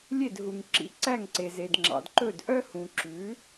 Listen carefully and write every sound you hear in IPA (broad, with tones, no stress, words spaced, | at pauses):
lʲe˥˩dɦu˩ŋ ǁḭ˩˥ ǀæ˥˩ŋǀe˩ze˩d ŋ͡ǁɑ̰˩dǃɵ˥˩d ʔœ˥hũ˩ǁʉ˩˥